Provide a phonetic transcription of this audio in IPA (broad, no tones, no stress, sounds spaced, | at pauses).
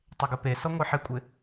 tˤ e ɡ ɪ p e s ɔ ŋʷ e ħ ɪ kʷʼ ɪ